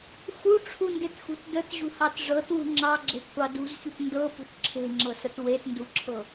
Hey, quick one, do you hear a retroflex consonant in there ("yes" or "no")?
yes